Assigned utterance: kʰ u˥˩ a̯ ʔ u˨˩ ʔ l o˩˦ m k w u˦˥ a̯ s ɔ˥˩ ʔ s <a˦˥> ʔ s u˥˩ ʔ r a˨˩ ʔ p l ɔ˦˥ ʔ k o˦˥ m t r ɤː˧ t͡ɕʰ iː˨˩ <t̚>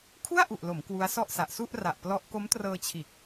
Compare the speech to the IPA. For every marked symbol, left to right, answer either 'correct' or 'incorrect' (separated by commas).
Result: incorrect, incorrect